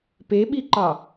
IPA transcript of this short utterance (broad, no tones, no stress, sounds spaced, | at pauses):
p e ɓ i ǃ ɑ